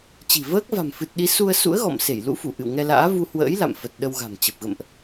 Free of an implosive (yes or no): no